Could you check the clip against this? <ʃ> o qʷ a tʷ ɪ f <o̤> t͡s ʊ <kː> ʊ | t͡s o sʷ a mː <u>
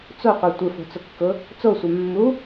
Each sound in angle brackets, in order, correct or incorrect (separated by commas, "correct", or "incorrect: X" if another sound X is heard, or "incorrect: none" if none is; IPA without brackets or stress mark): incorrect: t͡s, correct, correct, correct